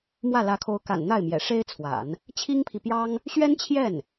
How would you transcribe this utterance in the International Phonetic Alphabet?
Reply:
m w ä˥˩ l ä˧˥ kʰ o˧˥ ʊ̯ k a̰˨˩ n n̪ a˥˩ ɪ̯ m j ɛ̰˨˩ ʂ e˥ ɪ̯ t͡sʰ w a̰˨˩˦ n | t͡ɕʰ i˥ ŋ pʰ i˨ p j ɑ˥ ŋ | ɕ ɥ ɛ˥ n t͡ɕʰ j ɛ˥˩ n

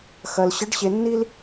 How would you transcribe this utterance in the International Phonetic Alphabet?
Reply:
x ɐ˧ l ɕ ə˧˥ ɖ ɕ e˧ nː i˥ l

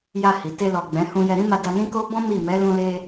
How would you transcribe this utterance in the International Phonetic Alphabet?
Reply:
j a˧ h i˨ t e˧ l ɔ˨ ɡ͡b ɛ̃˨˦ h ũ˧ j ɛ˧ ɾ ĩ˦ m a˧ d a˧ n ĩ˦ k o˦ b ɔ̃˦ m i˦˨ m ɛ˨˦ l ũ˧ l e˧

